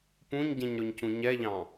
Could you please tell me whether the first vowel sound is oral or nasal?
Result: nasal